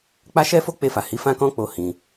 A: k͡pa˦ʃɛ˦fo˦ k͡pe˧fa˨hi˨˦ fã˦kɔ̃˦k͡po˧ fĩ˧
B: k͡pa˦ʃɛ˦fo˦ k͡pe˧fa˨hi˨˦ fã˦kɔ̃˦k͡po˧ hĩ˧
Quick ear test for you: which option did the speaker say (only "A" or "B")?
B